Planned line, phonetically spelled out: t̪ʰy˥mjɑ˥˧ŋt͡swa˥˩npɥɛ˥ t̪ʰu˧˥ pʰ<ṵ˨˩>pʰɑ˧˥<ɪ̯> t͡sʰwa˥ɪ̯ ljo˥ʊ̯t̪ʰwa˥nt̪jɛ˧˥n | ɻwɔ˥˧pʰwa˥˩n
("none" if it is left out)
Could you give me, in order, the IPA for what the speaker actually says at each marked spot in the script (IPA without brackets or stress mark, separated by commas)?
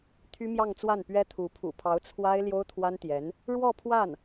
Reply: ṵ˨˩, ʊ̯